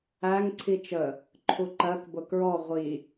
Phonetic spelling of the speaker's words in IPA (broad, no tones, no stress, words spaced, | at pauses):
æŋ ǀʰit͡ʃə | ǃʰuǃɜkbʊ kɹɔ ʁʷi